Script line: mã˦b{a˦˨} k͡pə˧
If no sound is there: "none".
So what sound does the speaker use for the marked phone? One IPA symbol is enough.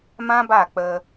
a˦˨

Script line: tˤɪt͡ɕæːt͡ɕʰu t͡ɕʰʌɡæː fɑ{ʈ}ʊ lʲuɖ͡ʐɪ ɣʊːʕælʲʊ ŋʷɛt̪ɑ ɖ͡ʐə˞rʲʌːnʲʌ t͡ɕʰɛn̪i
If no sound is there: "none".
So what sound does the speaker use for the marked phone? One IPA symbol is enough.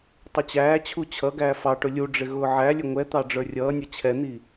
ʈ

